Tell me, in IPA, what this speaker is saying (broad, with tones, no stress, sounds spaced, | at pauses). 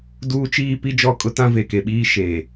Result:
d uː˦ t͡ʃ iː˦ p i˦ d͡ʒ ɔ˦˨ kʼ ʊ˦ t ã˦ v e˨ k e˨ ɓ iː˦ ʃ eː˨